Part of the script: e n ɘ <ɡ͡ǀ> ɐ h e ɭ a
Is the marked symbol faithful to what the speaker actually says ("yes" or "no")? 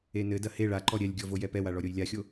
no